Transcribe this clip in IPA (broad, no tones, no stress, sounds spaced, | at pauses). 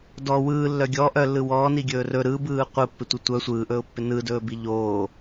d ɔ w ɯː lː œ ɡʲ ɔ ʔ œ lː ɯ w ɔː n i ɡʲ ɵː r ɵ ɾ ɯ b ɯː qʷ ɯ pː ɪ tʷ i tʷ œ sʷ ɯː ʔ ɵː ʊ̯ pː ɪ n ɯ d ɵː b i ʎ oː